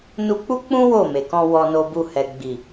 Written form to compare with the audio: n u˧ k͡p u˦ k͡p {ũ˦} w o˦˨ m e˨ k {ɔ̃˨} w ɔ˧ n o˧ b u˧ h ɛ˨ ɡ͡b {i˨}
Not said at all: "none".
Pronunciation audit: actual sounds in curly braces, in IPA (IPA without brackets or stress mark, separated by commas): ũ˦, ɔ̃˧, i˨